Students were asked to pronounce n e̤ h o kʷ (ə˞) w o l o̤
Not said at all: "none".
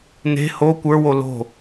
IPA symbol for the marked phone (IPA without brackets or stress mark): ə˞